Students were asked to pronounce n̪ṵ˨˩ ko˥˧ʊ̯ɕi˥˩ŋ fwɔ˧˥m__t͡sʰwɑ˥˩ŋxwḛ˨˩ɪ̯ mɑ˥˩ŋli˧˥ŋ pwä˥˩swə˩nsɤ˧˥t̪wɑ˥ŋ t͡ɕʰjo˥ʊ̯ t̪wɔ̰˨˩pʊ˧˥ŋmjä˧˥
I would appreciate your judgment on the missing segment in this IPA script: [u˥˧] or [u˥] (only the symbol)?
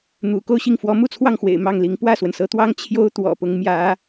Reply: u˥˧